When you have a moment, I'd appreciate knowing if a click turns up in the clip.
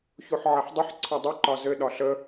yes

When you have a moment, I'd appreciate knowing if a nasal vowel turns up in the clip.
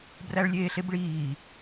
no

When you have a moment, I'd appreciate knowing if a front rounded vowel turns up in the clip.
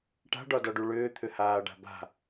yes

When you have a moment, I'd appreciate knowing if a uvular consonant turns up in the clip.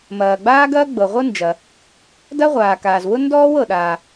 yes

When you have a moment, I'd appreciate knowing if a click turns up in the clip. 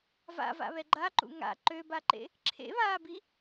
yes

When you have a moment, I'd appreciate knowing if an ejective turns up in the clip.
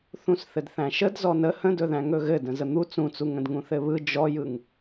no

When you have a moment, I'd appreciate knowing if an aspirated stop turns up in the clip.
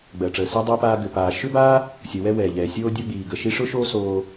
no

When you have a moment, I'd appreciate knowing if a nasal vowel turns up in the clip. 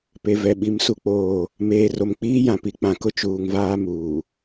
yes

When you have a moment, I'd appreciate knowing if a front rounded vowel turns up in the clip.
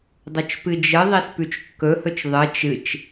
no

